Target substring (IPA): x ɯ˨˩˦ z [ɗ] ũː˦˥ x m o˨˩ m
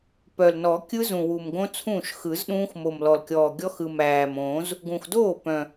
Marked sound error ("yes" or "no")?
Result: no